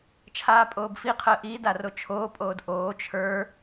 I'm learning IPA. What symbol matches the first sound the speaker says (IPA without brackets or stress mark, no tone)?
t͡ʃʰ